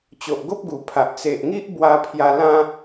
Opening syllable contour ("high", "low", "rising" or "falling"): low